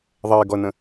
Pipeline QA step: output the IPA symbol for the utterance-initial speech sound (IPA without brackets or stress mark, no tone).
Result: ðˤ